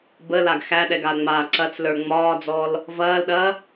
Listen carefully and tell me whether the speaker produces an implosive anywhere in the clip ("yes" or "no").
yes